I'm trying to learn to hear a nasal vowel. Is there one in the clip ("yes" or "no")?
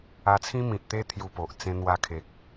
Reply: yes